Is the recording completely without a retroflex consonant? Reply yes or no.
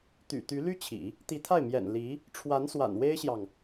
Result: no